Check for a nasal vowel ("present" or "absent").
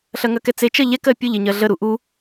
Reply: absent